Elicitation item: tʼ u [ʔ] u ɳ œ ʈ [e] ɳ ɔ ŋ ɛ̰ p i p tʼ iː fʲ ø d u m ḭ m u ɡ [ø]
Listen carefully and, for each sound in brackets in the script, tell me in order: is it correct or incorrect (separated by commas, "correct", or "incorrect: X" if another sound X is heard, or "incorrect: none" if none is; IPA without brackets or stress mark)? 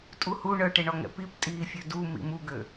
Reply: incorrect: h, correct, correct